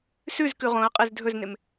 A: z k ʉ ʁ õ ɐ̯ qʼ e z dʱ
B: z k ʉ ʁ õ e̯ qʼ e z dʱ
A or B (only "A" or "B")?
A